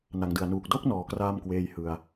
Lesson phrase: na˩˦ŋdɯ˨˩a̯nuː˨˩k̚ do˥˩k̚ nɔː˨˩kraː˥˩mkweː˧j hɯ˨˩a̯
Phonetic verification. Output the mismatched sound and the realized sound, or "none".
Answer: none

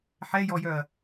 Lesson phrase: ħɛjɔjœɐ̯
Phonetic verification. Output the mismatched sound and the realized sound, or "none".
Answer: none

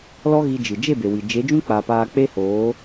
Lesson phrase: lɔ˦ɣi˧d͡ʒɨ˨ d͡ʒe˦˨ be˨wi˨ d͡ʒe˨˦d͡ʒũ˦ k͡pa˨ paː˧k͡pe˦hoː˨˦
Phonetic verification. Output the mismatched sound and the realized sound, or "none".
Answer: none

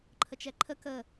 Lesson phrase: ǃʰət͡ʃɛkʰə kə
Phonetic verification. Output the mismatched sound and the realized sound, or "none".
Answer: kʰ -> ǃʰ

